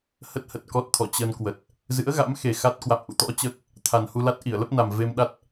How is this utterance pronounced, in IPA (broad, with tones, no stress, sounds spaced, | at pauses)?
h ə˦˥ t̚ h ə˨˩ t̚ k ɔ˦˥ t̚ t̪ʰ ɔ˧˩ t͡ɕ ə˧ n k w ə˨˩ t̚ | z ɨ̰˧˥ ə̯ ɣ a̰˧˥ m x e˨˩ x a˦˥ t̚ k w a̰˧˨ m ʔ ṵ˧˨ t̪ ɔ̰˧˥ t͡ɕ əː˦˥ k̚ | t̪ʰ a˨˩ n h u˧ l a˦˥ t̚ ʔ i˧˩ ə̯ l ə˦˥ p̚ n a˨˩ m v e˧ m ɗ a˦˥ t̚